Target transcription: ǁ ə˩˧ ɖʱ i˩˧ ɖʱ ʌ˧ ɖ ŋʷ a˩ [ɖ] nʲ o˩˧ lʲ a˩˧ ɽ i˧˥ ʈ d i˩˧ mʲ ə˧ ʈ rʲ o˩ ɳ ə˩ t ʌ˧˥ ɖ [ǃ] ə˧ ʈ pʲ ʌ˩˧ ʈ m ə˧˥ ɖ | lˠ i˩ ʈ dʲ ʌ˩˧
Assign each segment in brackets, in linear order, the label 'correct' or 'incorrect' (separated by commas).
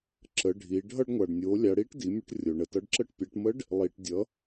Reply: correct, incorrect